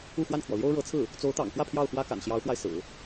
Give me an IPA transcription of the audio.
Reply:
u˥˧ x w a˥˩ n kʰ w ɔ˩ l j o˥ ʊ̯ ɻ ɤ˧˥ t͡sʰ ɹ̩˥˩ | t͡s o˧˥ ʊ̯ t̪ ɑ̰˨˩ ŋ f w ä˥˧ pʰ j ɑ˥˩ ʊ̯ x w ä˥ k a̰˨˩ n ɕ j ɑ˧˥ ʊ̯ x w a˧ ɪ̯ s ɹ̩˨˩˦

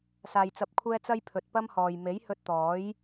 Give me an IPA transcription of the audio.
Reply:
s aː˨ j t͡s ɐ˨ p̚ kʷʰ ɛː˧ t͡s ɐ˥ j pʰ ɵ˨ t̚ p ɐ˥ m h ɔː˨ j m e˨˥ j h ɵ˧ t̚ t̪ ɔː˨˥ j

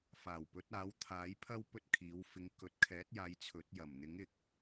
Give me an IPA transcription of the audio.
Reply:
f aː˨˩ w p ɵ˨˥ t̚ aː˨˥ w t̪ʰ aː˨˥ j pʰ ɐ˥ w p ɵ˥ t̚ kʰ iː˨˥ w f ɪ˨˧ ŋ k ɵ˨ t̚ kʰ ɛː˨˥ t̚ j aː˨˧ j t͡sʰ ɵ˨˥ t̚ j ɐ˨˩ m n̪ ɪ˨˥ ŋ ɪ˨ k̚

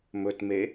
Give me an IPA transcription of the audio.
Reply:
m ɵ t m e

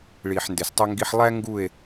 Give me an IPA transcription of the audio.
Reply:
ɭ iː˨ ħ n d e˨ s tˤ œ˦ ŋ ɡ i˦ ħ lˠ æ˦ ŋ ɡ u˦˨ e̯

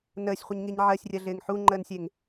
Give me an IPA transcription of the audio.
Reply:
n əː sʲ χʷ ə ɲ ŋ i ɲ ʕ ɜ sʲ rʲ ɜ ɮ ɪː ŋ ħ u ŋ͡ǃ əː n sʲ e ŋ

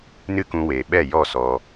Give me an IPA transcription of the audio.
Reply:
n ɨ˦ k ũ˧ w eː˨ ɓ ɛ˦˨ j ɔ˦˨ s ɔ˧

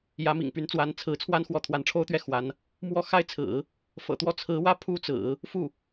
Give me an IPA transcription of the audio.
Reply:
j ä˧˥ m ḭ˨˩ ŋ p y˧˥ n t͡s w a˧˥ n t͡sʰ ɹ̩˧˥ t͡sʰ w a˥ n x w ɔ˧˥ t̪ʰ w a˧˥ n ʈ͡ʂʰ o˥ ʊ̯ t̪ ɥ ɛ˥˩ x w a˧˥ n | m w ɔ˥˩ x a˥ ɪ̯ t͡sʰ ɹ̩˨˩˦ | f ɤ̰˨˩ t̪ w ɔ˥ t͡sʰ ɹ̩˧˥ w ä˥ pʰ u˥ t͡s ɹ̩˨˩˦ | f u˥˩

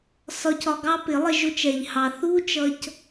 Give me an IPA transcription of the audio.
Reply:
s ɒ˧ c ɒ˧ ɡ ɑ˦ p ɪ˨˦ lˠ ɪ˧ ʒ ʊ˧ t͡ʃ ɛ˨ ʎ h ɑ˧ θ u˦ t͡ʃ ʌ˧ c

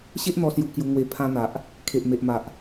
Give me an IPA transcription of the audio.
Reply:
ɕ e˦ ʔ n̪ ɔ˧ s j u˧ k j u˧ ŋ w e˧ pʰ ã˧ n̪ a˨ ʔ | kʰ e˨ ʔ m e˨ ʔ m a˨ ʔ

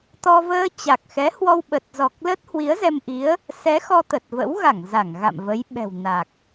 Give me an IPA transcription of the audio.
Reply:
t̪ ɔ˧ v əː˧ t͡ɕ a˨˩ k̚ x ɛ˨˦ h w ɔ˧ w ɓ ə˨˩ t̚ z ɔ˨˩ k̚ l ə˦˥ t̚ h w i˨˦ ə̯ z ɛ˧ m ʔ i˨˦ ə̯ | s ɛ˨˦ x ɔ˧ t̪ ə˨˩ t̚ v ə̰˧˥ w ɣ a˧˩ ŋ z a˧˩ ŋ ɣ a̰˧˨ m v ə˨˦ j ɓ ɛ̤˨˩ w n a˨˩ k̚

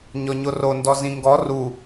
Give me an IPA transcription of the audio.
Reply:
ɲ ɔ ɲ o r o n d ɔ z ĩ ŋ ɡ ɔ r u

